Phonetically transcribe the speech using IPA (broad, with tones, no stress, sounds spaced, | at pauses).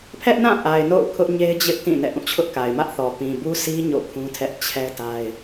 pʰ ɛ˦ ʔ n ã˦˨ ʔ a˨ ɪ̯ n o̰˦˨ ʊ̯ kʰ ʊ˦ ʔ ɲ e˦ ɪ̯ d͡ʑ ɪ˦ ʔ t ĩ˦˨ n ɛ̰˦˨ ʔ ũ˦˨ t͡ɕʰ ʊ˦ ʔ k a˨ ɪ̯ m ä˦ ʔ θ ɔ˨ p ĩ˨ b u˦ sʰ i˦ ɲ o̰˦˨ kʰ ũ˦ tʰ ɛ˦ ʔ t͡ɕʰ ɛ˦ t a˦ ɪ̯